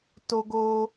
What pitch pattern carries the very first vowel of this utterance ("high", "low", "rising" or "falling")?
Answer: high